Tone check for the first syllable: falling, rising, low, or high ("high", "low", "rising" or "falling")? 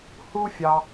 high